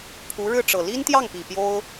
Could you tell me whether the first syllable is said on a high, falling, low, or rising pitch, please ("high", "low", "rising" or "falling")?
rising